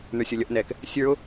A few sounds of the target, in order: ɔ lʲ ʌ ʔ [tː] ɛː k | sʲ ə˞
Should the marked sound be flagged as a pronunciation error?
yes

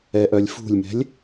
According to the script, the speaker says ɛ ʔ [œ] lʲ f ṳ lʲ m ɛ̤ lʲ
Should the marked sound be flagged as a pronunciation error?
no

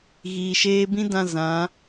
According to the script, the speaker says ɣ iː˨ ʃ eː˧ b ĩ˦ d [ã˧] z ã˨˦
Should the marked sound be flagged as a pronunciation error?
no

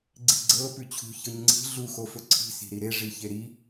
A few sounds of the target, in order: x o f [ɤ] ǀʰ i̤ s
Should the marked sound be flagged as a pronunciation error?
yes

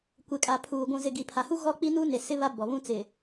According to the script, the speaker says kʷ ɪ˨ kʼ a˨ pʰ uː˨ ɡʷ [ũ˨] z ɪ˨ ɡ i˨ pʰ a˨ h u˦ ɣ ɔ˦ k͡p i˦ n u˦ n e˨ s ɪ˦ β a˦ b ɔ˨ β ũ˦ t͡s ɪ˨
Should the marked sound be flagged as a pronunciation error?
no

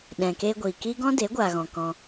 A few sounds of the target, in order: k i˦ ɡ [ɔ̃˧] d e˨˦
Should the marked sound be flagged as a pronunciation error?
yes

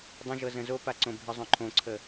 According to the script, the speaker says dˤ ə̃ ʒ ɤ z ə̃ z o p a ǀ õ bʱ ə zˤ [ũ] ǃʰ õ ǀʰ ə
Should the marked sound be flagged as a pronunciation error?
yes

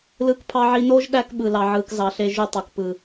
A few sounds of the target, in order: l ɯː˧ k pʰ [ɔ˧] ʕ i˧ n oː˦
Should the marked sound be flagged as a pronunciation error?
yes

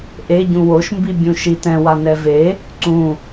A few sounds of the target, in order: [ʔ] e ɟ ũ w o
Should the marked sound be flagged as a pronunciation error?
no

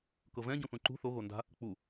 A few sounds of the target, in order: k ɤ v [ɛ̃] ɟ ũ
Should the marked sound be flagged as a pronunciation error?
no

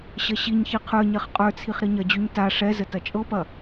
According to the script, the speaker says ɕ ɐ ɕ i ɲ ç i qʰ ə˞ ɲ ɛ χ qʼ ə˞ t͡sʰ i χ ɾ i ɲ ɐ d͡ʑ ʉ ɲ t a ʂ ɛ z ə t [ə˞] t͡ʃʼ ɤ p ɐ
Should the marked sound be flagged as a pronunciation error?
yes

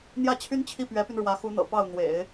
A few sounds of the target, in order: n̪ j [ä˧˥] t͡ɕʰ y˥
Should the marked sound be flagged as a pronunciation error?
yes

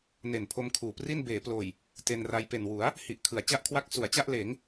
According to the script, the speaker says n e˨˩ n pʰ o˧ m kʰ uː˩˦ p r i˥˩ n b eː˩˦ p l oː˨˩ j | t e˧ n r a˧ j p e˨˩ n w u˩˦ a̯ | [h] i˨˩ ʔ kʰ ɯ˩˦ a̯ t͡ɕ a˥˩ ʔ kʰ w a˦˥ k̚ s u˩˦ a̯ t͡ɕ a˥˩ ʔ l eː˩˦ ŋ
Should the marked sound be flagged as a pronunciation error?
no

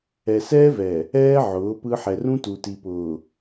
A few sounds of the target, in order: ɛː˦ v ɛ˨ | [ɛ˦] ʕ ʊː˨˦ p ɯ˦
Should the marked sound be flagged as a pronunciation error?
yes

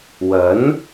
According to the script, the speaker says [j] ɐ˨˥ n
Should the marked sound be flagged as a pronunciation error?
yes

